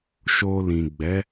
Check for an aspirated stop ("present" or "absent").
absent